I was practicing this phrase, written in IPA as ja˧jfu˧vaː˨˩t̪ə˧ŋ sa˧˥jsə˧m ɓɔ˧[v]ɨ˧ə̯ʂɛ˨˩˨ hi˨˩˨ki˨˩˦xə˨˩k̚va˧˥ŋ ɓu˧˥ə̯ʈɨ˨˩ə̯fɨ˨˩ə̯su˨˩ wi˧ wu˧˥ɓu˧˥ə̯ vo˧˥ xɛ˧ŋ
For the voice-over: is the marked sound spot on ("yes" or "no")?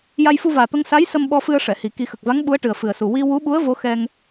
no